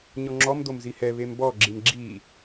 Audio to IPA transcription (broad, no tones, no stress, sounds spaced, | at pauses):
ɲ ɔ ŋ͡ǁ ɔ m d̪ o m z i h ɛ β e m b ɔ ɡ͡ǁ i m ɡ͡ǁ i